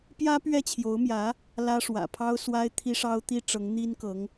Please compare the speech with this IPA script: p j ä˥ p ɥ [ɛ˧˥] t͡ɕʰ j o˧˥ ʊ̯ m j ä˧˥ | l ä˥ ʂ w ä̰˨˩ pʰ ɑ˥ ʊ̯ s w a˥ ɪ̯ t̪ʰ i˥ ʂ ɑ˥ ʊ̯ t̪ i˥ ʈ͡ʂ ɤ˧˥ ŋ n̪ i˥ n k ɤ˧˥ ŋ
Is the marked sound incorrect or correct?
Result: incorrect